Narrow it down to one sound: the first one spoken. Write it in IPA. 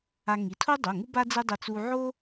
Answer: a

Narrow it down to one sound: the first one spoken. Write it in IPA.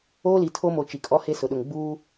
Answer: oː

